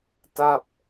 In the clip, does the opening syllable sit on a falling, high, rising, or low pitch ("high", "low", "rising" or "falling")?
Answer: falling